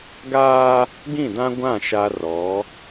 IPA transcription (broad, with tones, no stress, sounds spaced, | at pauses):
ɡ aː˦ | ɡ ĩ˦˨ d ã˦ ɡʷ ã˦˨ ʃ a˦ r ɔ˨˦